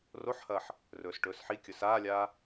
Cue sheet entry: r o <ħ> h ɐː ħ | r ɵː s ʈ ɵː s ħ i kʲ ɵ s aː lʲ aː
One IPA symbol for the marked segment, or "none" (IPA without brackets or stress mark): ħ